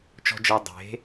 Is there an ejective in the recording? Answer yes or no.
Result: no